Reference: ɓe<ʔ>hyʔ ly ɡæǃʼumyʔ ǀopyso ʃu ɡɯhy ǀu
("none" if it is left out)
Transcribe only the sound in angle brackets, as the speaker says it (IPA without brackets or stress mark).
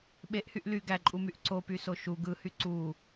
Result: ʔ